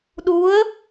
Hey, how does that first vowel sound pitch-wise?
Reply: rising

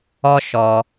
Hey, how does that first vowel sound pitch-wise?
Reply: high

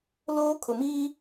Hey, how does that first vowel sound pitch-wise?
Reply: high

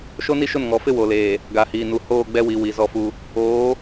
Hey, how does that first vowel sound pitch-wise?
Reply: high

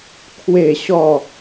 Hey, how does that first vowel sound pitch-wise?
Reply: falling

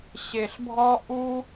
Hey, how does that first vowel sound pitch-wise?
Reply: low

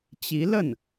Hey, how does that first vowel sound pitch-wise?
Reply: rising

